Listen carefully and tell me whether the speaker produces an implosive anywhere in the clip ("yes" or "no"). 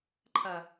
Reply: no